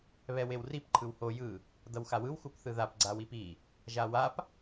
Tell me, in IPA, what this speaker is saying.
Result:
β ɛ w e w r i p ǃʰ ɯ w h o j ɯ | d ʌ w x a w ɯ w x u p θ ɯ ð a p ɡ͡ǀ a w i p i | ʒ a w a p

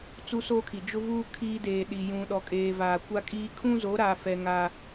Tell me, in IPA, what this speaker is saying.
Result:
t͡s u˦ s oː˦ kʰ i˨ d͡ʒ ʊ˦ v uː˦ kʰ iː˦ d eː˨ ɗ i˨ j ũ˨ ɗ ɔ˨ kʼ eː˨ v aː˨ kʷ a˦ kʼ iː˦ kʰ ũ˦ z o˨˦ ɾ aː˨ f ɛ˨ ŋ aː˦

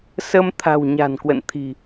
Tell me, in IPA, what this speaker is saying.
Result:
s ə˧ m t̪ʰ a̤˨˩ w ɲ a̤˨˩ n k w ə̰˧˨ n t̪ʰ i̤˨˩

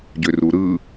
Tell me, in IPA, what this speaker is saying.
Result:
ɟ ø r u ɾ ɯ

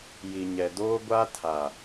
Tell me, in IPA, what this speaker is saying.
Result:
j i˨ ɲ ɛ˨ d oː˦ ɡʷ a˦ tʰ a˨

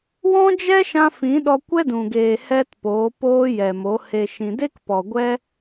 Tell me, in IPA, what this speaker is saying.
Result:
w ɔ̃˦ d͡ʒ ɛ˦ ʃ ã˧ f ĩ˨˦ ɗ ɔ˧ kʷ ɛ˦ d ũ˨ ɡ eː˨ h ɛ˦ t p oː˨˦ p oː˦ j ɛ˨ m o˨˦ h e˨ ʃ ĩ˨ d e˦ k p ɔ˨ ɡʷ ɛ˦

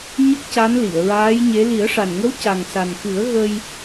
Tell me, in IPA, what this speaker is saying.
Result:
ɲ ə˦˥ k̚ c a˧˥ n l i˨˩˨ ə̯ ɹ aː˧˥ j ɲ e˧˥ l i˨˩˦ ə̯ ʂ a˨˩ n ŋ ə˧˥ w c a˨˩ ŋ s a˨˩ n x ɨ˨˩˦ ə̯ ɣ ə˧ j

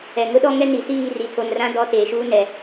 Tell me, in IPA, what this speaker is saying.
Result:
ɛ˨ ŋ ʊ˦ ɗ ɔ˦ ŋ ɛ˦ n i˨ s iː˦˨ r i˨ tʰ o˨ n r ã˦ d ɔ˦ t eː˨ ʃ uː˦ n ɛ˨

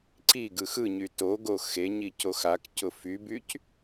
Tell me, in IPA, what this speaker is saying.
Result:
ǀ i ɡ ɯ x ɯ ɲ y t o ɡ o x e ɲ i c o x a k c ʊ f y b y c

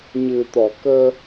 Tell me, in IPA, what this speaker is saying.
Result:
ɲ ɨ˨˩ t̪ ɔ˨˩˨ k əː˧

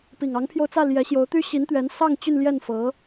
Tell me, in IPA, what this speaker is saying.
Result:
p i˨˩ ŋ ɑ˧˥ ŋ pʰ j o˧ ʊ̯ t͡s ä˥˩ l j ɛ˧˥ ɕ j o˧˥ ʊ̯ t̪ y˥ ɕ i˧˥ n t̪ ɥ ɛ˧˥ n s ɑ˥˧ ŋ t͡ɕ y˥˧ n l j ɛ˥˩ n f ɤ˧˥

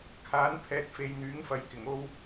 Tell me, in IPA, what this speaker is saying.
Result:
kʰ aː˨˥ n pʰ ɛː˨ t̚ f e˨ j n̪ yː˨˥ ŋ f ɐ˨˥ j k ɪ˨˩ ŋ o˧ w

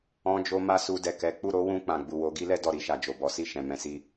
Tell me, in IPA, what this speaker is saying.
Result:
ɔ̃˧ d͡ʒ o˧ m a˦ s u˧ d ɛ˨ k ɛ˨˦ k͡p u˦˨ ɾ o˨˦ w ũ˧ k͡p ã˨ ɡ͡b u˨ w o˨˦ ɡ i˦ l ɛ˦ d ɔ˦˨ ɾ i˧ ʃ a˨ d͡ʒ o˨ b ɔ˨˦ s i˦˨ ʃ ɛ̃˨ m ɛ̃˨˦ s i˧

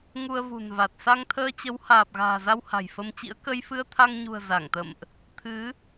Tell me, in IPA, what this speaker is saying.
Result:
ŋ u˧ ə̯ v ṳ˨˩ n v a˨˩ t̚ s a˧ ŋ t̪ʰ əː˧ t͡ɕ ə˨˦ w h aː˨˩ p̚ ɣ a̤ː˨˩ z a˧ w h a̤˨˩ j f ə˧ m t͡ɕ ḭ˧˥ ə̯ k ə˧ j f ɨ˧ ə̯ t̪ʰ a˧ ŋ ɲ ṳ˨˩ ə̯ z a˧˩ ŋ t̪ ə̰˧˨ m ʔ | t̪ʰ ɨ˨˦

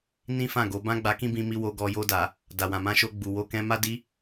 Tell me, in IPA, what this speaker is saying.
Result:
n ĩ˦ f ã˦˨ ɡ o˨˦ b ã˦ ɡ͡b a˧ k ĩ˦ b ĩ˧ m i˧ w o˧ ɡ ɔ˧ j o˧ d a˨ | d a˨ w ã˨ m ã˧ ʃ o˧ ɡ͡b u˨ w o˧ k ɛ̃˧ m a˦ d i˦

